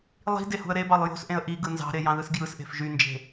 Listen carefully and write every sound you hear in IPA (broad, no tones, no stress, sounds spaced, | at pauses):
lˠ i̤ d e h ṳ ə̯ ɾ e b ɑ lˠ j o̤ s ʔ ẽ ə̯ ʔ i ɡ ɯ n z ɑ̤ ɾ e j ɑ̃ ð ɯ s ɡ j ɯ s ʔ e̤ f ʒ y n d͡ʒ e̤